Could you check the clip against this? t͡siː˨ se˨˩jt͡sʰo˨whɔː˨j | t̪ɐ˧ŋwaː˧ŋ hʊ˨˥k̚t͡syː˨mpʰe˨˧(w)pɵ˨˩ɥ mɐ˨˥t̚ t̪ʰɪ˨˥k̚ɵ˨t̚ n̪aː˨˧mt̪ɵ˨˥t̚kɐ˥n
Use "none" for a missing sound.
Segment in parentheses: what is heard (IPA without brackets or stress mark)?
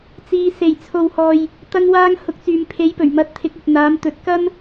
j